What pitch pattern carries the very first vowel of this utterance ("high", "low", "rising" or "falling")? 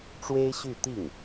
high